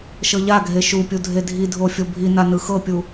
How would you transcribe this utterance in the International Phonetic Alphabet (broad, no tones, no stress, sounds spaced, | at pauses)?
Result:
ʃ ɤ ʎ a ɡʱ e ʃ u pʲ u dʱ e dʱ i dʱ o fʲ o bʱ i n a n ɯ x ɤ pʲ u